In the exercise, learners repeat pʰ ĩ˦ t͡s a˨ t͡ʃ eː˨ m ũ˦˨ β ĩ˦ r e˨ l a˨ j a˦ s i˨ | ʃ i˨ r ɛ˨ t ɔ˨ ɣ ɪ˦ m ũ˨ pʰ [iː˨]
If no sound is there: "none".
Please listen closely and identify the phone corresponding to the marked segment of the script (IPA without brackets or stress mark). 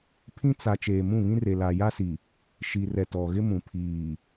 iː˨